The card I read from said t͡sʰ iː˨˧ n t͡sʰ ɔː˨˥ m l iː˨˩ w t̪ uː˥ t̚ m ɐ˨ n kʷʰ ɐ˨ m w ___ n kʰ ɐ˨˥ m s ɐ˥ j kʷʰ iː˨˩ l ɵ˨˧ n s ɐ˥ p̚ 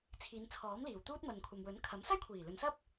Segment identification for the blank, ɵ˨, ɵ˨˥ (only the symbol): ɵ˨˥